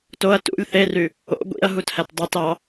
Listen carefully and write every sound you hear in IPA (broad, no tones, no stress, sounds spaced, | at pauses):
t o ɐ̯ t ṵ lʲ θ e r y | o̰ ɡʷ ḭ ɐ̯ ɦ u t h æ t dˤ e t ɑ